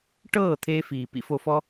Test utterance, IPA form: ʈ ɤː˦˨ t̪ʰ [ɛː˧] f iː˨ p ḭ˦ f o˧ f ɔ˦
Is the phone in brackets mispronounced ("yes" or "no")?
yes